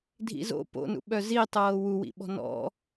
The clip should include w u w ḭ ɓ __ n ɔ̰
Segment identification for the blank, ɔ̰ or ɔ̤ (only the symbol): ɔ̤